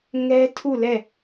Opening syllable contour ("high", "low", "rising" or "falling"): high